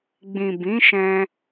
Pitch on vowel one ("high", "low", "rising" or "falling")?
low